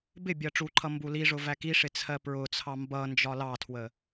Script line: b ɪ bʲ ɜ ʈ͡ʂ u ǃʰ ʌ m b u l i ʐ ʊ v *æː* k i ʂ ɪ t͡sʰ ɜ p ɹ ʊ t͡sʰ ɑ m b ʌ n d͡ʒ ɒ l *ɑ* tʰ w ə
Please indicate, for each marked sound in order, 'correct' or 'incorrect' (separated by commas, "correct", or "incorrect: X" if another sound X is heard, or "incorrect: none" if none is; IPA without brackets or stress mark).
incorrect: æ, correct